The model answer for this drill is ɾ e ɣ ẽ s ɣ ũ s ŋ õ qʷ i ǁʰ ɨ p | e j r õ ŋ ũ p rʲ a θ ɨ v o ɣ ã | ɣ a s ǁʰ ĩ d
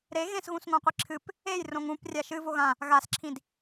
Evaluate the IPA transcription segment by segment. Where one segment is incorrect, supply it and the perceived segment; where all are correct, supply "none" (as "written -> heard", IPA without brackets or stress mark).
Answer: θ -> ʃ